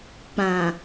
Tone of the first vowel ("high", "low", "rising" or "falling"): low